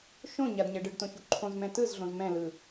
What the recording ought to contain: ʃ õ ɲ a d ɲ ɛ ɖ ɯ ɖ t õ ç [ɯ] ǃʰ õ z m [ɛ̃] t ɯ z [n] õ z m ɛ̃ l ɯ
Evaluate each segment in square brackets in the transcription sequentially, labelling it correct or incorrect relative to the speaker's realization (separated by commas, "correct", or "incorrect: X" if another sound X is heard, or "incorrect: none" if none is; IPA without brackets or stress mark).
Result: incorrect: u, correct, incorrect: ɮ